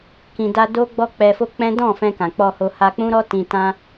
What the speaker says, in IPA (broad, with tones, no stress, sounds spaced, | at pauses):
k ĩ˨ d a˧ d o˦ ɡ͡b ɔ˦ k͡p ɛ˧ f o˦ k͡p ɛ̃˦ d ɔ̃˦˨ f ɛ̃˧ k ã˨ k͡p ɔ˧ h o˧ h a˧ k͡p ũ˦ ɾ ɔ˦ t ĩ˧ t ã˦